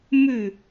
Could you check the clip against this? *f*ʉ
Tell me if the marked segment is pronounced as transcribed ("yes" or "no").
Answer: no